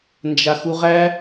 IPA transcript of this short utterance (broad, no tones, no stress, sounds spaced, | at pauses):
n d͡ʒ a x u ʁ æ